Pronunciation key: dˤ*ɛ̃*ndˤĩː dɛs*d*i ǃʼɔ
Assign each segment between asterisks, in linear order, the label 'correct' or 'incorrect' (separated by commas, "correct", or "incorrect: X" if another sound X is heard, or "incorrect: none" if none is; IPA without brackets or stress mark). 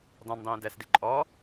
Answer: correct, correct